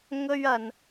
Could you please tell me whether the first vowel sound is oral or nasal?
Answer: oral